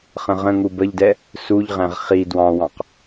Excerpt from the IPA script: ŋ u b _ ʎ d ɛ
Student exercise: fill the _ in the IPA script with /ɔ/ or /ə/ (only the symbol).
ə